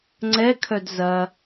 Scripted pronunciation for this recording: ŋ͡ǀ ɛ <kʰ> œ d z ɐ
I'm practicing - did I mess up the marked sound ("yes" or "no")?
no